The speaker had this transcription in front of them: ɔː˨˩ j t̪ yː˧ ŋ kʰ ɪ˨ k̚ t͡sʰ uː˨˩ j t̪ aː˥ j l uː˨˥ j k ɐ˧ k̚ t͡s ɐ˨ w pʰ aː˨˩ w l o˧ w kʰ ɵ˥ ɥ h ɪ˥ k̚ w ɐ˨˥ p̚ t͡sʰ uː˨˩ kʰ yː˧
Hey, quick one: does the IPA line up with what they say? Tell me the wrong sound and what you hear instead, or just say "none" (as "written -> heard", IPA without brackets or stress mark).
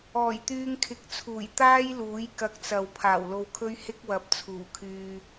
none